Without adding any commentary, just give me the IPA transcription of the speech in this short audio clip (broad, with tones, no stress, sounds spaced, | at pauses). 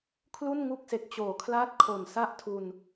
kʰ l u˥˩ n ŋ u˥˩ k̚ s e˨˩ k̚ t͡ɕ oː˨˩ kʰ l aː˥˩ t̚ kʰ o˨˩ n s a˥˩ ʔ tʰ u˧ n